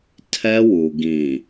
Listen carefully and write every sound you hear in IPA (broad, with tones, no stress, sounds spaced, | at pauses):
tʰ ɛ˦ w u˨ ɡ ĩ˨